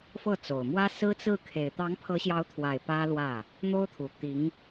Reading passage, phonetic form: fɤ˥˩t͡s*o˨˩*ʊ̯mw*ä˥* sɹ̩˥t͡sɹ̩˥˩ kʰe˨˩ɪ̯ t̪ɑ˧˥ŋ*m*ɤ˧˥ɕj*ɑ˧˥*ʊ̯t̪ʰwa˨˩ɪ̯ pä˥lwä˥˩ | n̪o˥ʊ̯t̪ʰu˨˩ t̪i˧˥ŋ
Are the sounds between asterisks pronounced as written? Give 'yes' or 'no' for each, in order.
yes, yes, no, yes

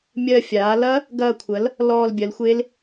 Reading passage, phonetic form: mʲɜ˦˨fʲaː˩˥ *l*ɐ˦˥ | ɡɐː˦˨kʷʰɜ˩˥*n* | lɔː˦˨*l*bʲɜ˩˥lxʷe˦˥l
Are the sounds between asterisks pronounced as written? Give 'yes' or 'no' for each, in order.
yes, no, yes

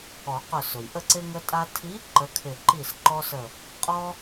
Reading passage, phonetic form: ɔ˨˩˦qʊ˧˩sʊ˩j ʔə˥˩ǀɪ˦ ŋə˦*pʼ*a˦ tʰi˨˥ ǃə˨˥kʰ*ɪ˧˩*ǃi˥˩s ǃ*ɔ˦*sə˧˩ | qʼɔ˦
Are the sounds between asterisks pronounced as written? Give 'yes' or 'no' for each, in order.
no, yes, yes

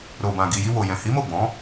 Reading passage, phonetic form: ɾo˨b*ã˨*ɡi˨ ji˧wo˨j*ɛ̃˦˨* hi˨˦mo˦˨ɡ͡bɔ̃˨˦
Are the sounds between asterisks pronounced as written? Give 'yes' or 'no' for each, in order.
yes, no

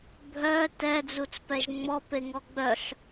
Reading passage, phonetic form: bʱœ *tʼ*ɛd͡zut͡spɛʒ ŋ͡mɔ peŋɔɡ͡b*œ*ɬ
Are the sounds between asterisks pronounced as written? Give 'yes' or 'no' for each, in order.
no, yes

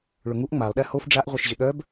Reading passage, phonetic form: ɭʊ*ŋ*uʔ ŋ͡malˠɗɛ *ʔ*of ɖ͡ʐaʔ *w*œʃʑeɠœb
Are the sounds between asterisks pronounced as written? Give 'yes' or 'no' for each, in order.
yes, no, no

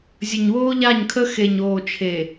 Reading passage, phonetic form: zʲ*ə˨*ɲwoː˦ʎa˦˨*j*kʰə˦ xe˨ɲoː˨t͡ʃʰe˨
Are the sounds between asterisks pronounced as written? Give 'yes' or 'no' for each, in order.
yes, no

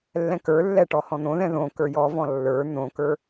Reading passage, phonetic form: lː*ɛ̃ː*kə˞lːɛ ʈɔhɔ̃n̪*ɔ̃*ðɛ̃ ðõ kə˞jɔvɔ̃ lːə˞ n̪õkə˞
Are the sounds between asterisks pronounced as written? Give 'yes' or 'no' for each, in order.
no, no

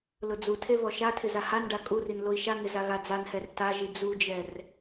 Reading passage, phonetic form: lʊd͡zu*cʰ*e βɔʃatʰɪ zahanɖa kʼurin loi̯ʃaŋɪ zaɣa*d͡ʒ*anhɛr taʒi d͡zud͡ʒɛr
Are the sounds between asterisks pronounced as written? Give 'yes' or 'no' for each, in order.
no, no

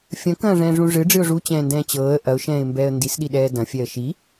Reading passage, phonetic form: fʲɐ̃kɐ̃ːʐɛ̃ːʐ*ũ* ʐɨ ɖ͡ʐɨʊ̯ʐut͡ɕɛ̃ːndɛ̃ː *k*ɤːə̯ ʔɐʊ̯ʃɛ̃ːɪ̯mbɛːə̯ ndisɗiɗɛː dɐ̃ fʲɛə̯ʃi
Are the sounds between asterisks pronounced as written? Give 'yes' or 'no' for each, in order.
yes, no

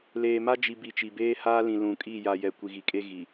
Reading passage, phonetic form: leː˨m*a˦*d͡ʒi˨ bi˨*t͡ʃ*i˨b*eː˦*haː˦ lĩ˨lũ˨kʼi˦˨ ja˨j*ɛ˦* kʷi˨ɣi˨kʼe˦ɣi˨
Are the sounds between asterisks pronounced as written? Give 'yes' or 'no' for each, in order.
yes, yes, yes, no

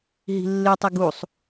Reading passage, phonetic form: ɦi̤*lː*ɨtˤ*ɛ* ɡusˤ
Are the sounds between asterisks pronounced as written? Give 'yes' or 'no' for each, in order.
yes, no

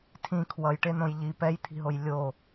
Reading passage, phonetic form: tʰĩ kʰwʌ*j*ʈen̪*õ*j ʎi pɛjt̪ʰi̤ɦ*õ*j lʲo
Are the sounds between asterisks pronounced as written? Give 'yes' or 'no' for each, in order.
yes, yes, no

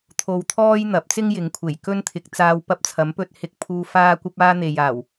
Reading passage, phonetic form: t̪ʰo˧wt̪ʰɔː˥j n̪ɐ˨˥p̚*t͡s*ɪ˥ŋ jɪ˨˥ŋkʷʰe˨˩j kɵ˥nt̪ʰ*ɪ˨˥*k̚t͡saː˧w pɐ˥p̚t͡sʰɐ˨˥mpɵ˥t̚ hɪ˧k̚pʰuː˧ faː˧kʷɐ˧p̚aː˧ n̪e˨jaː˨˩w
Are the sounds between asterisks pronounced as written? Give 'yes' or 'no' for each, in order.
yes, yes

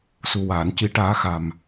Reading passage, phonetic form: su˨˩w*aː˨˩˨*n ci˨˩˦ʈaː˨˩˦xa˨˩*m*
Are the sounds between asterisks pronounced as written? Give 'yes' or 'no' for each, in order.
yes, yes

